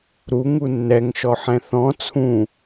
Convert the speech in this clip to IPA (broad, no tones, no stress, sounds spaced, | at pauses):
ɾ u ŋ u nː ɛ ŋ ʃ ɔ ħ ɛ̃ θ ɔ̃ t͡sʰ ũ